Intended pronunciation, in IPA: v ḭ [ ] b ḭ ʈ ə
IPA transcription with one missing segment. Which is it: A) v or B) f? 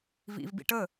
A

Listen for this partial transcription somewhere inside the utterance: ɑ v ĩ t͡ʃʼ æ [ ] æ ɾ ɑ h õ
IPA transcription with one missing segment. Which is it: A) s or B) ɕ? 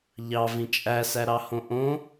A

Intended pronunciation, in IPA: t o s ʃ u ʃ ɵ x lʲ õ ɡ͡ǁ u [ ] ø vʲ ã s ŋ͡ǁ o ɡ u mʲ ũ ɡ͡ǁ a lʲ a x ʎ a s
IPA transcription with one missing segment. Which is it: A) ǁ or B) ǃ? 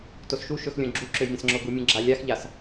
A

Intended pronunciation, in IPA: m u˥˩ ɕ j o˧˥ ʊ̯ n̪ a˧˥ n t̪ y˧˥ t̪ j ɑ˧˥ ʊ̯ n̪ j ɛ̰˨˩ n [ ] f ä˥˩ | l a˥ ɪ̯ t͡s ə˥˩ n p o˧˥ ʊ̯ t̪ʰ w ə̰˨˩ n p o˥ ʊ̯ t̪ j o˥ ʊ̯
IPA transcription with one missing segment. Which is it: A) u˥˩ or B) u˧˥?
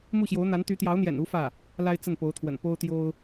B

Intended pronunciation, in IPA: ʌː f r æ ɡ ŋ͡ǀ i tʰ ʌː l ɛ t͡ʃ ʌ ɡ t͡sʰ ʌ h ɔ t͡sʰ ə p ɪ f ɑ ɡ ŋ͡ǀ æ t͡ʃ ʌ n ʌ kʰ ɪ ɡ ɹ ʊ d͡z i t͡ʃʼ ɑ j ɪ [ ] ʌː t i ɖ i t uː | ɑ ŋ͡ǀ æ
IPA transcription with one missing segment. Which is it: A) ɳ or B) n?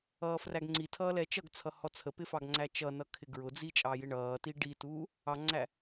A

